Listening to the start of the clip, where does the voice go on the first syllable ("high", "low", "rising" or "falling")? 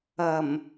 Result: low